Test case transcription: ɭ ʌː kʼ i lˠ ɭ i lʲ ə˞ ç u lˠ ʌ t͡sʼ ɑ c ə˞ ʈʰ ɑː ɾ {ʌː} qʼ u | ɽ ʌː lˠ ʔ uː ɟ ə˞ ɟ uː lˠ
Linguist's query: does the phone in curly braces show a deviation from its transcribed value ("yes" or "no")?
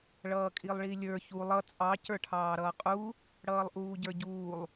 no